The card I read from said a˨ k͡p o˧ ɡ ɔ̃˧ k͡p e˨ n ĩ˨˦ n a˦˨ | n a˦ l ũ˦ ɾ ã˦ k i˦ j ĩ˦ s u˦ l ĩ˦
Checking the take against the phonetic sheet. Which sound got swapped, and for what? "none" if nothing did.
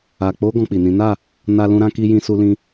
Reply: e˨ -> i˨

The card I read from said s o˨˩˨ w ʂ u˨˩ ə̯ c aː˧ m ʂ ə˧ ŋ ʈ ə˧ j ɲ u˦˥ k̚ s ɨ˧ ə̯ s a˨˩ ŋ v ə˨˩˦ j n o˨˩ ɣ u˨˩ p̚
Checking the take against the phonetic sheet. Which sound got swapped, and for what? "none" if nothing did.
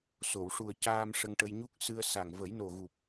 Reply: none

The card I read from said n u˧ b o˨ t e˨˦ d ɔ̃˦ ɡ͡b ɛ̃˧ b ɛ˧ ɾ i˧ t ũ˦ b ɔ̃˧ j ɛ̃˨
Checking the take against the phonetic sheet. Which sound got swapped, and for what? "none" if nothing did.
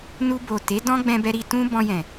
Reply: none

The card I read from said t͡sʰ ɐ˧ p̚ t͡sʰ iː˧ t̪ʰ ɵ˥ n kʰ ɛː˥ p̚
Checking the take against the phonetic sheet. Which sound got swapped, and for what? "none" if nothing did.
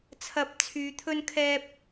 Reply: iː˧ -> yː˧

